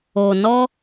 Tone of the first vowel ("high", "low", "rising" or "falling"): low